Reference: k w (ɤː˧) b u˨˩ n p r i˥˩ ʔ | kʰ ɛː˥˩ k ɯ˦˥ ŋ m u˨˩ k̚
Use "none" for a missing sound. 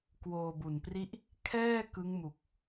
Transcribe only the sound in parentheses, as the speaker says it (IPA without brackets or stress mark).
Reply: oː˧